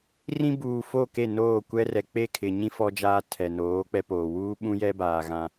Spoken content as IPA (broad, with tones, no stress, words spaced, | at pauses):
rĩ˦buː˨ fo˦˨ke˦˨ noː˦˨kʷɛ˦rɛ˨ k͡pe˦˨kʰɪ˨ɲĩ˦ fɔ˦d͡ʒaː˦ tʰɛ˨noː˨˦ k͡pɛ˦poː˨ wuː˦ɓũ˦jɛ˦baː˨ ɣã˦